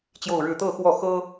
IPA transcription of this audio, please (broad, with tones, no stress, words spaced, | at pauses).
t͡ɕjo˥˧ʊ̯ɻɻ̩˥˧ t̪ɤ˥˧xwɔ˥˩xɤ˥